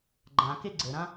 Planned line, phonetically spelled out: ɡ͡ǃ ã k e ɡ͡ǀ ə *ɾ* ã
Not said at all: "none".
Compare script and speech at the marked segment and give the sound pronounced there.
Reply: ɾ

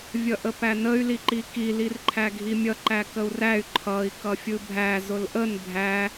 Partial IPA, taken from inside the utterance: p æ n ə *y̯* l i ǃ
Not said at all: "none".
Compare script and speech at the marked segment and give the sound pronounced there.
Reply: y̯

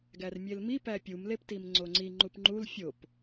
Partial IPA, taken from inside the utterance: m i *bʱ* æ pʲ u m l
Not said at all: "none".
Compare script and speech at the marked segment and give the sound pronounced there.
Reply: p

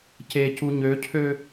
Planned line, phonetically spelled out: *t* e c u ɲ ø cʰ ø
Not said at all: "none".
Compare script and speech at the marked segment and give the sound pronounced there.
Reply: c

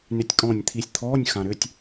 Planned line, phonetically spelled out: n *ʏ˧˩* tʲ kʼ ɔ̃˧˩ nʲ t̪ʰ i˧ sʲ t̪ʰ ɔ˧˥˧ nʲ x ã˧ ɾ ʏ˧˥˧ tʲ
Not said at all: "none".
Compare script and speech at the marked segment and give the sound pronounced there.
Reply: ʏ˧˩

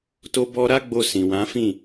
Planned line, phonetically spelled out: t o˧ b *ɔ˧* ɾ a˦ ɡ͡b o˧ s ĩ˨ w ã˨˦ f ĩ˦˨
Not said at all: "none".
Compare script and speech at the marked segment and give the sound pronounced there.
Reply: ɔ˧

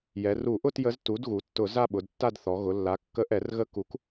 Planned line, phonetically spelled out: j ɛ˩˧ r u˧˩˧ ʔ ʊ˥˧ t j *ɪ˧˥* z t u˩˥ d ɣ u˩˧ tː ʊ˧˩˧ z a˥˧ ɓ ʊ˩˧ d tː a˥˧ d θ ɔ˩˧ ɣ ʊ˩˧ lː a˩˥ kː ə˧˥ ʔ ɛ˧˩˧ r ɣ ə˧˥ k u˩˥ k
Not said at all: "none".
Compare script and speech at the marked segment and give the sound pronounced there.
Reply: ə˧˥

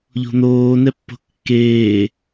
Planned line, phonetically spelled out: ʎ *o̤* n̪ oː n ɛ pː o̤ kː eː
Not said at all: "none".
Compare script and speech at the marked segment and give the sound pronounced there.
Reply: o̤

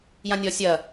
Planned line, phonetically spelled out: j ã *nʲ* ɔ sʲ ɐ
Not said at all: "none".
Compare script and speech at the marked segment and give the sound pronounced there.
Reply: nʲ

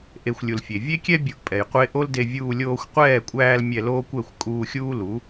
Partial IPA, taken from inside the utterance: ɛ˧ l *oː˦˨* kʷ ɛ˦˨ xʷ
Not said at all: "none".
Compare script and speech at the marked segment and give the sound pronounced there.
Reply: oː˦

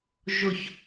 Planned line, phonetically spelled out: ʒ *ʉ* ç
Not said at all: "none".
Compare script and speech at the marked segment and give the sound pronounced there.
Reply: ʊ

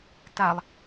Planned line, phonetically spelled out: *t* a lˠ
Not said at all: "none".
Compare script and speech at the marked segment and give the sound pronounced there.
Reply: t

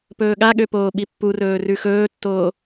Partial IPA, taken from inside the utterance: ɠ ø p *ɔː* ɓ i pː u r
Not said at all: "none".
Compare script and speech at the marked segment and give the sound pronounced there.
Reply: oː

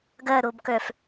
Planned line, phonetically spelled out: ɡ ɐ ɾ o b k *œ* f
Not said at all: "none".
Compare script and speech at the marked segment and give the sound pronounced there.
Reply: œ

